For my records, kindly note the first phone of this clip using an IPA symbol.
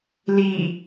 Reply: l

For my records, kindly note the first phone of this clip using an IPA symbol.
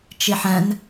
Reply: t͡ʃ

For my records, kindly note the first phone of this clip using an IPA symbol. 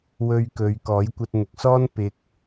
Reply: w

